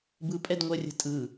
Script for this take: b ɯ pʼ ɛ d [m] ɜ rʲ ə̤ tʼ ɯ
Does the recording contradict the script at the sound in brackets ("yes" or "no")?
yes